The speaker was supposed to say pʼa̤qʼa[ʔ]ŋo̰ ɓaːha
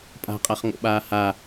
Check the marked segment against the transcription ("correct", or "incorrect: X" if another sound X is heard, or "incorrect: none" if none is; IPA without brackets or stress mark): incorrect: χ